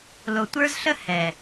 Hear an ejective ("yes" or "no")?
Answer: no